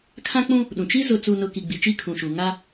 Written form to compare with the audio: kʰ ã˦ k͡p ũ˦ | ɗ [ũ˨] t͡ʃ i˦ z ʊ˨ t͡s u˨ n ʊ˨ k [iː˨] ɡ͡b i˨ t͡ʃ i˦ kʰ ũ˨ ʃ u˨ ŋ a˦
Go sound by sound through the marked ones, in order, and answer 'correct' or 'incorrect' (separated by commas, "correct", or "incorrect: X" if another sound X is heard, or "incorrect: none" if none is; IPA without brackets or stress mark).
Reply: correct, incorrect: i˨